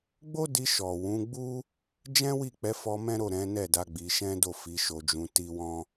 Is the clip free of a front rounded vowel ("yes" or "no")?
yes